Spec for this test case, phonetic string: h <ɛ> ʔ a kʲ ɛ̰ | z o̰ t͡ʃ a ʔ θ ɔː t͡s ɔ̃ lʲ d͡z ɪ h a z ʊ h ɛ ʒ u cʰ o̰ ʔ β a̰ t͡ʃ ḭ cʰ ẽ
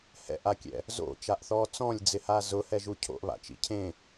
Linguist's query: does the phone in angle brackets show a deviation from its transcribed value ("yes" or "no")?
yes